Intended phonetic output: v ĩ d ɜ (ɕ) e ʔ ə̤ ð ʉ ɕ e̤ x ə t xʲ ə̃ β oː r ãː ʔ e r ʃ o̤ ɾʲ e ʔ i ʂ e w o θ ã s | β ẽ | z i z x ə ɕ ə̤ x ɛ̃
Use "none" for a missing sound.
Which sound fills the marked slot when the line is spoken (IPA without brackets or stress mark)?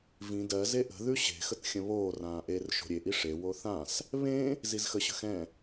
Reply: z